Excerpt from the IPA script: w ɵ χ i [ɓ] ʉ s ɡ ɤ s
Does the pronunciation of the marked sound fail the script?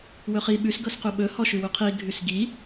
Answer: no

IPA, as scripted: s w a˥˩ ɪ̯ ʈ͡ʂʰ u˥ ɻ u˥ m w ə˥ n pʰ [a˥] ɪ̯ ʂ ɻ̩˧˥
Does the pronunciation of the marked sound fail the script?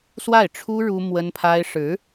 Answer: no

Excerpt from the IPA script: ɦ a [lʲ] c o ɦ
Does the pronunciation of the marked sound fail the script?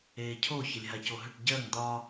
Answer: yes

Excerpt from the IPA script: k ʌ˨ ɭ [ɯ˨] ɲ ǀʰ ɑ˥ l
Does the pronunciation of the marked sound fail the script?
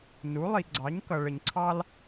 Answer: yes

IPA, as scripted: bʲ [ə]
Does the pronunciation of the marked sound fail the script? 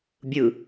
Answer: yes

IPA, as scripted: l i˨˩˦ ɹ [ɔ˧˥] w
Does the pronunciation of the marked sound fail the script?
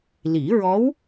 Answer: no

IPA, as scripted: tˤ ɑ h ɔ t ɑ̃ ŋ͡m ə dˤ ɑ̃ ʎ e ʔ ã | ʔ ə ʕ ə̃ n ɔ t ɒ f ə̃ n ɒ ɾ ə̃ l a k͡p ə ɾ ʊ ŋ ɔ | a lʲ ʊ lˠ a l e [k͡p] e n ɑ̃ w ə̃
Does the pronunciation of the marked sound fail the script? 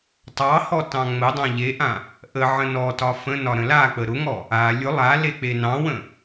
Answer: no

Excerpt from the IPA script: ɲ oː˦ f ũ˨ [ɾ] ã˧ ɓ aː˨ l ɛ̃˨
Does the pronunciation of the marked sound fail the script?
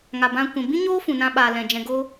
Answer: yes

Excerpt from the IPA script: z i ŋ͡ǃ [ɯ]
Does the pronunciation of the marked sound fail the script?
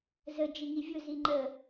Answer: yes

